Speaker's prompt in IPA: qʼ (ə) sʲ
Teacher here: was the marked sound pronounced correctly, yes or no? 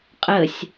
yes